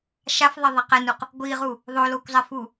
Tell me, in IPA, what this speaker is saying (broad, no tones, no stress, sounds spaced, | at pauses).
ʃ a f ðˤ ɛ ðˤ ɛ q ɛ n u q | ɡʷ i ʁ u | ðˤ o l o kʷ zˤ ɛ f u